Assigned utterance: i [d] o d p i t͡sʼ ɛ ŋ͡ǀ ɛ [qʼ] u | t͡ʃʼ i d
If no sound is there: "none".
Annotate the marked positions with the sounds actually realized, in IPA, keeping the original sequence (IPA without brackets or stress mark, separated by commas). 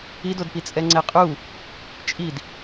d, qʼ